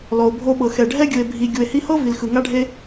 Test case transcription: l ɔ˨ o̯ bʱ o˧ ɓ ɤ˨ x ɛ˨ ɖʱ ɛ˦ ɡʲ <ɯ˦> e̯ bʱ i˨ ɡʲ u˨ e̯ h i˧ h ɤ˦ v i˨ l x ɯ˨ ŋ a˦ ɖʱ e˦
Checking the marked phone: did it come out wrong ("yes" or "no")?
yes